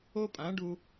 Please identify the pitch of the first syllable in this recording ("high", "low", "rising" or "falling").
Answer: high